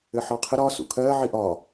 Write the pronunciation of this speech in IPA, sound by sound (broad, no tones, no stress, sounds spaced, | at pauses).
ɘ ħ ɒ qʰ ɘ ɾ ɒ s ṵ kʰ ɜː ʕ i ʔ ɒ